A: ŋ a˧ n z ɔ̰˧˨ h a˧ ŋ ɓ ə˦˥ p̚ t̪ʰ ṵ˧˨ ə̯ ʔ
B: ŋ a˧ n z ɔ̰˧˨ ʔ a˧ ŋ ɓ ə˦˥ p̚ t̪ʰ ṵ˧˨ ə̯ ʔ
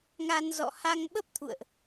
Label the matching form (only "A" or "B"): A